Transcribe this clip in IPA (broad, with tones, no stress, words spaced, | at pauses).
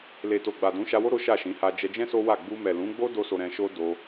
le˨to˨ɡ͡ba˨ dũ˨˦ʃa˧wo˦ ɾo˦ʃa˦˨ʃĩ˨˦ ha˧d͡ʒɛ˧d͡ʒɛ̃˦ so˦wa˦˨ ɡ͡bu˧mɛ˨lũ˨˦ɡ͡bo˦ do˦so˧ɾɛ̃˧ʃo˦ do˧